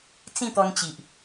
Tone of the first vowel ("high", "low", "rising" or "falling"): falling